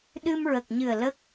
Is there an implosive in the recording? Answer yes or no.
yes